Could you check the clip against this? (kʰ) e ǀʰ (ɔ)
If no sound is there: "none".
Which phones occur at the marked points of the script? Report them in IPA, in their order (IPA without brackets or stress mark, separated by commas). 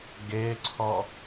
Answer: ɡ, ɔ